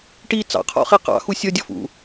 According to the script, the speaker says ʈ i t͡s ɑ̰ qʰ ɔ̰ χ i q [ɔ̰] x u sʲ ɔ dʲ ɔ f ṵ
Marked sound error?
yes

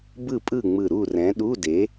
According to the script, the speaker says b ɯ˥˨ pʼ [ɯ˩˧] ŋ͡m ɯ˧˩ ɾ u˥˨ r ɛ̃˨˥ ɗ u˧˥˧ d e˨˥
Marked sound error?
yes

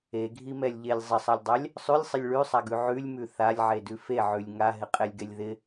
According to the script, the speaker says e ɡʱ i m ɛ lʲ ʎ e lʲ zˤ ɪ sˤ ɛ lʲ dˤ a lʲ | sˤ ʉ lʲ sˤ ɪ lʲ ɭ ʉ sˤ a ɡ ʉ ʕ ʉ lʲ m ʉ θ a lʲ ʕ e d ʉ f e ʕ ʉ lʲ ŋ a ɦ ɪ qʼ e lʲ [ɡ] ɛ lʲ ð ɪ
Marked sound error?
no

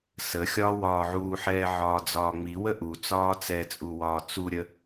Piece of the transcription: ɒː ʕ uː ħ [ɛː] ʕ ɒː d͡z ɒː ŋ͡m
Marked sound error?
no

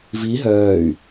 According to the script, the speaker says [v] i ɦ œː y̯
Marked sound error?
no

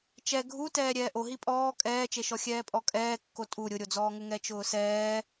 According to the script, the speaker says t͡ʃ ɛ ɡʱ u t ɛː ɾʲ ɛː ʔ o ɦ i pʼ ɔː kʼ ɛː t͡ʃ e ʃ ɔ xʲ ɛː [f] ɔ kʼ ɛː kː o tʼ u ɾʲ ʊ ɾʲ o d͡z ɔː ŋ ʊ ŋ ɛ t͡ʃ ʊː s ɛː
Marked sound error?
yes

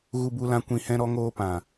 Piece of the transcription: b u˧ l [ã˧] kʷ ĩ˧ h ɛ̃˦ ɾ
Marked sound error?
no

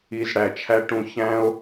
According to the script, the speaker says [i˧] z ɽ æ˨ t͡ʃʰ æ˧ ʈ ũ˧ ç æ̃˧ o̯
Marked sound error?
no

